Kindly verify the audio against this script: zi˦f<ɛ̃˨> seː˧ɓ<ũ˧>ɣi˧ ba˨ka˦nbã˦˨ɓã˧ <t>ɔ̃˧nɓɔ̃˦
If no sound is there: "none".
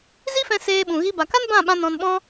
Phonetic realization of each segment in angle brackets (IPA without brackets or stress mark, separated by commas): ɛ̃˧, ũ˨, n